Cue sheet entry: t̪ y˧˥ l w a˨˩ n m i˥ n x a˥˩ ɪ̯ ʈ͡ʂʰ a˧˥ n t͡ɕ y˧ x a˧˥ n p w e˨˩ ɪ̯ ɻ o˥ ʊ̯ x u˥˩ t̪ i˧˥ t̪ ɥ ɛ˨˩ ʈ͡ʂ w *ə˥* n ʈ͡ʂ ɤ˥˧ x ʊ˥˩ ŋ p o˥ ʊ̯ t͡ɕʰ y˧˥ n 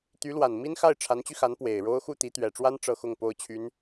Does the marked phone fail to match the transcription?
yes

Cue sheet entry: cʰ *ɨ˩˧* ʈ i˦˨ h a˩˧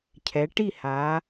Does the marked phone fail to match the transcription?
yes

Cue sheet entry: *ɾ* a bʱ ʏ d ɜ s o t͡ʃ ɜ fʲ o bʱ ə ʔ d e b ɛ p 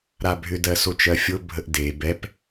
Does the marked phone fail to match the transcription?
no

